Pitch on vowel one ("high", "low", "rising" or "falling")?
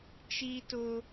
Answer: high